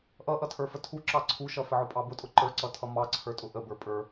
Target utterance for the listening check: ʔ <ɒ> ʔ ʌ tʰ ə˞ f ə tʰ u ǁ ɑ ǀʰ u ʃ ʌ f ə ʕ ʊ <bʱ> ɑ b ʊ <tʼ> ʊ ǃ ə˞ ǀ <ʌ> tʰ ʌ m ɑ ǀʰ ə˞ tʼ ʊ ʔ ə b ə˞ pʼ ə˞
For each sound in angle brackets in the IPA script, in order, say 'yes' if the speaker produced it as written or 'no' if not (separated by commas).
no, no, yes, yes